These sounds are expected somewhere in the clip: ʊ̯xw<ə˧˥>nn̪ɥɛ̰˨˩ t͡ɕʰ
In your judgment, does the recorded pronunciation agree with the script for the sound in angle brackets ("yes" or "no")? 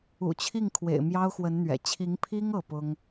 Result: yes